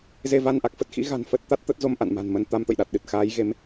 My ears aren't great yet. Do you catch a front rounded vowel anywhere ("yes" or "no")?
no